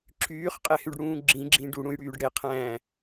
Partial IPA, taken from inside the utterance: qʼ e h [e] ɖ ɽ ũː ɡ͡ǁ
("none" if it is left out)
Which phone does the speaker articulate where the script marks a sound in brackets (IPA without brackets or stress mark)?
y